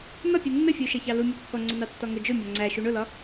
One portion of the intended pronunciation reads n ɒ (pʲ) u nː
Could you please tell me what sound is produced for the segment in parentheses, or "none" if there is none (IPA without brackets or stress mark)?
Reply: pʲ